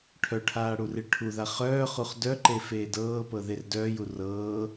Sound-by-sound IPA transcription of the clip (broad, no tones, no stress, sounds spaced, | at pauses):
ʈʰ œ ʈʰ aː ɽ u r i ɭ ʈʰ u ð a χ œː χ u χ d œ ǃ e f eː d ɤː p ɤ ð e r d œː j u r ɤː